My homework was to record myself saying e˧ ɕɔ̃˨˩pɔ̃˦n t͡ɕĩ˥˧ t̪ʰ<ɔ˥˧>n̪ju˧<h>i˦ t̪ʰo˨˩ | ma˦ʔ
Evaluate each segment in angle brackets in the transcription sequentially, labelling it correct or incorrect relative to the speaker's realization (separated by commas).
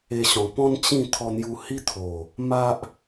incorrect, correct